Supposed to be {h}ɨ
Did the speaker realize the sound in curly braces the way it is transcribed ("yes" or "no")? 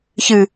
no